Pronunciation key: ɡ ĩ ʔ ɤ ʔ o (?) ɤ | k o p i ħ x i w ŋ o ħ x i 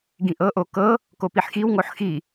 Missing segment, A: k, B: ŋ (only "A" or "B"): A